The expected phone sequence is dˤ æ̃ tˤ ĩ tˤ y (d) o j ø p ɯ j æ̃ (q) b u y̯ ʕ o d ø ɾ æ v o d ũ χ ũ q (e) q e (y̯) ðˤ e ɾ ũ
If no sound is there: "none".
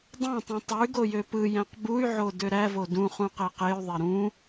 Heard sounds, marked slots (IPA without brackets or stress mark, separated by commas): ɡ, q, e, y̯